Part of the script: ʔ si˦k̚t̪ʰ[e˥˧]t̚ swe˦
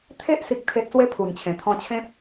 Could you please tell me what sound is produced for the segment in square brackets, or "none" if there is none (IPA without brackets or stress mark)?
e˦